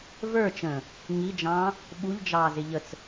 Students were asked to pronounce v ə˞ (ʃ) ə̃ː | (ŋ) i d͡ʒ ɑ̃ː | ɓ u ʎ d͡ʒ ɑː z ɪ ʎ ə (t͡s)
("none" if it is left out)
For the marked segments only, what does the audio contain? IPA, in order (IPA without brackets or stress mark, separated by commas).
t͡ʃ, ŋ, t͡s